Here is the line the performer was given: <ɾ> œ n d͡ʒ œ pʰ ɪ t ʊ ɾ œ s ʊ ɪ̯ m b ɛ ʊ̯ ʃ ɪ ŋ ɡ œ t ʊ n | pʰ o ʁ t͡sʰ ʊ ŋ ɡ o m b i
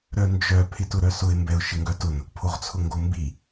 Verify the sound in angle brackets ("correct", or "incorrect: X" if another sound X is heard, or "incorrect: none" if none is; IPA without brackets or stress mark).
correct